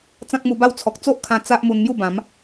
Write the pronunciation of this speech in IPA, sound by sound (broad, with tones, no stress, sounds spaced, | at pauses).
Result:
t͡s ã˦ k̚ m u˧ b a˥˧ w t͡sʰ ɔ˨ k̚ t͡s o˦ ʔ kʰ ã˧ t͡s a˦ ʔ m u˧ n m j u˥˧ b ã˨˦ m